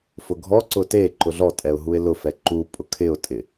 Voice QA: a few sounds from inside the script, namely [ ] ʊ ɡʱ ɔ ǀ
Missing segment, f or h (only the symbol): f